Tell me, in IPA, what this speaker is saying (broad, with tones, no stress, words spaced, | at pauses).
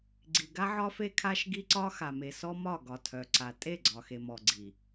ɡ͡ǀi˨ɡa˦ʕɒ˦ fe˦kʰa˦ʃɡi˦ǀɒ˦ xa˨me˨sɔ˦mɒ˦˨ ɡɒ˨tʰœ˨ǀa˨ tʼe˦˨ɡ͡ǀɒ˨xe˨mɔ˨ ɡ͡ǀi˨